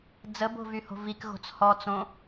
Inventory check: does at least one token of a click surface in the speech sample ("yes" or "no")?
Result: no